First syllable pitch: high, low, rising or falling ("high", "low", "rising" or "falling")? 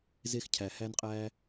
high